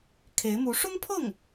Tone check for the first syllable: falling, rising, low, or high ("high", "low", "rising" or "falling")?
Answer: rising